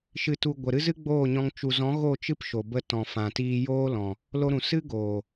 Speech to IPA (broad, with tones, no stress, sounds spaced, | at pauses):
ʃ ɨ˨ t u˨ ɡʷ ə˨ ɾ ɨ˧ z ɨ˦ ɡ͡b oː˦˨ ɲ ɔ̃˧ ŋ t͡ʃ u˨ z ɔ̃˨˦ ɣ o˦˨ t͡ʃ ɨ˦ p ʃ o˨ b ə˧ t ɔ̃˨ f ã˨ t iː˧ j oː˦ l ɔ̃˨ | l o˧ ɾ ũ˨ s ɨ˦ ɡ oː˨